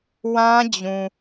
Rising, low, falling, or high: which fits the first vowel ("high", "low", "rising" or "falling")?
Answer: high